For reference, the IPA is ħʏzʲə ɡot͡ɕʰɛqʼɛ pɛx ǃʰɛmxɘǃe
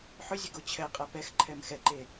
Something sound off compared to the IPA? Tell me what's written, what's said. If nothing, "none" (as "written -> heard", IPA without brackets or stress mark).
ɘ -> ɛ